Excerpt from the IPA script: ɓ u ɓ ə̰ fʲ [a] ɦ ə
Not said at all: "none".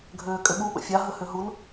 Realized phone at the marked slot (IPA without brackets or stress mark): a